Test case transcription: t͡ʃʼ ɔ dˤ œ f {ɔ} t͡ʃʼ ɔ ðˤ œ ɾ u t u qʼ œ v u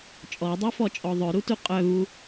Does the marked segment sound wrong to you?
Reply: no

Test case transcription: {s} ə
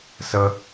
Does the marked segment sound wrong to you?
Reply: no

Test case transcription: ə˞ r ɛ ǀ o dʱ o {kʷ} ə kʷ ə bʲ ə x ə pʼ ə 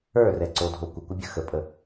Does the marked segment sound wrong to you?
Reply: no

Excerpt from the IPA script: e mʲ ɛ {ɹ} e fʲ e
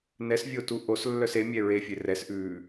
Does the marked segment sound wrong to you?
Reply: no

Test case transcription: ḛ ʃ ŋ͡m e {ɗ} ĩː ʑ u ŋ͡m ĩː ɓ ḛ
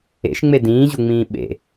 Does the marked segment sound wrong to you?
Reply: yes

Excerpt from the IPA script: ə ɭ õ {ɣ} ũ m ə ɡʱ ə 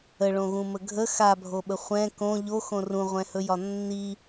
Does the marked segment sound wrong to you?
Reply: no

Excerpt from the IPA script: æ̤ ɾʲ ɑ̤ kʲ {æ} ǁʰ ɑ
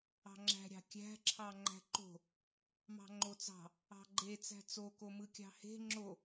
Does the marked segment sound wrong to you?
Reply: yes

